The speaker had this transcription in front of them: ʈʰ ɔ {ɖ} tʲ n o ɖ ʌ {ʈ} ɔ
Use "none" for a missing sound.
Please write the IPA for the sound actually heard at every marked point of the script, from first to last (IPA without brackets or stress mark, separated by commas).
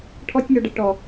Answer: none, ʈ